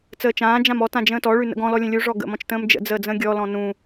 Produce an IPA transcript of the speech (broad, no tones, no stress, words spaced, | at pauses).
t͡səːt͡ʃãː d͡ʒãmɔ tãd͡ʒə̃ːtɔ ɭʉnə̰ɡɔ̃ lɔlʲə̃lʲu ʐɔɡə̰ mɔ̃t͡ʃtə̃ːmd͡ʒə̰ d͡zəːd͡zə̃ːɡʲɔ lɔ̃nũ